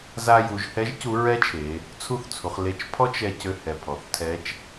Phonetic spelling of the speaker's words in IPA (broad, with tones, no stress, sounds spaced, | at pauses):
z a˧ j u˩˧ ʒ h ɛ˧˥ ʒ c u˧˥ ɹ ɛ˥ t͡ʃʰ e˩˧ | t͡sʰ u˥ θ t͡sʰ u˩˧ χ l e˧ t͡ʃ pʰ ɔ˥ t͡ʃ ɛ˧ c ø˧ h ɛ˩ pʰ ɔ˩ θ tʰ ɛ˧˥ t͡ʃ